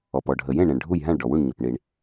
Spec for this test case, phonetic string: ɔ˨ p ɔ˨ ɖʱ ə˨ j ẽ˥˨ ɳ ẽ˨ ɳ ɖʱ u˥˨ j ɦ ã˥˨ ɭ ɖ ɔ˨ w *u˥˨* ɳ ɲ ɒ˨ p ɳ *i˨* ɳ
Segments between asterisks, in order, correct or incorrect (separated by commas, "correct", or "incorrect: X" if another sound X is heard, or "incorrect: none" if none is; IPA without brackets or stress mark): correct, correct